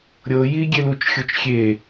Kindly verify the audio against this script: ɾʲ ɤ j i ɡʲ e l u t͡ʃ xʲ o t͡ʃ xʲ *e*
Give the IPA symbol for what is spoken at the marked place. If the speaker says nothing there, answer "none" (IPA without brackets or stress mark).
e